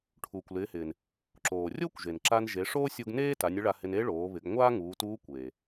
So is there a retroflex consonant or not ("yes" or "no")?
yes